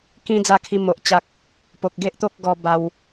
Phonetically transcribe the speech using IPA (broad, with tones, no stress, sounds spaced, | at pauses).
k ĩ˦ d͡z a˧ kʰ i˧ m o˨ ʔ t͡ɕ a˦ k̚ | p o˨ k̚ ɡ e˦ ʔ t̪ o˦ k̚ ɡ ɔ˧ b a˧ w